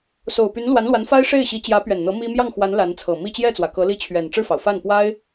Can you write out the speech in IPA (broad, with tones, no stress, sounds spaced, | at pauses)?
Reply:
s o˨˩ ʊ̯ p y˧˥ n l w a˧˥ n l w a˧˥ n f a˥ ɪ̯ ʂ e˥˩ ɪ̯ ɕ i˧˥ t͡ɕ j ä˧˥ p ɥ ɛ˨˩ n n̪ ɤ˧˥ m i˥ m j ɑ˥˩ ŋ x w a˧˥ n l a˧˥ n t͡sʰ ɤ˨˩ m i˥˧ t͡ɕ j ɛ˥˩ t͡s w ä˩ k ɤ˧˥ l i˥ t͡ɕʰ ɥ ɛ˨˩ n ʈ͡ʂ ɻ̩˥˩ f ɑ˩ ʊ̯ f a˥˩ n p w a˥ ɪ̯